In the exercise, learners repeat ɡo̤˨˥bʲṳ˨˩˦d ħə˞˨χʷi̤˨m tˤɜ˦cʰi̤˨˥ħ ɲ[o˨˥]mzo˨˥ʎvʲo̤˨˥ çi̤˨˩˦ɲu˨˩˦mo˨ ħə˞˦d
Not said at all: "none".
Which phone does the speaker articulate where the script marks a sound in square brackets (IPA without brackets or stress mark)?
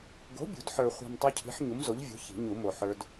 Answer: u˨˥